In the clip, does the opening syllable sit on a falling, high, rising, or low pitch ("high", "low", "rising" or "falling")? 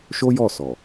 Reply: high